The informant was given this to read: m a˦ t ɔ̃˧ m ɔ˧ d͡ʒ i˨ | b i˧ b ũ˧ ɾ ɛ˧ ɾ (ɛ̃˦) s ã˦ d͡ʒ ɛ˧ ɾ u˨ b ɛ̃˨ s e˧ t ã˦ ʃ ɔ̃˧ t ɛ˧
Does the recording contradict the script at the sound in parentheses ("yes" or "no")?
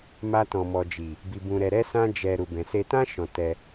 yes